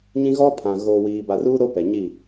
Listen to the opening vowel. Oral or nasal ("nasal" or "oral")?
nasal